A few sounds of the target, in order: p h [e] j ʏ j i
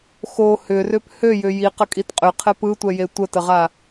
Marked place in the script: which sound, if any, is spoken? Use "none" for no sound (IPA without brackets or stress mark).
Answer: ø